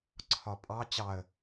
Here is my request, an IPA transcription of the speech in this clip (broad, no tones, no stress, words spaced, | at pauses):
ǀʰɒpʼɑ t͡ɕɑə̯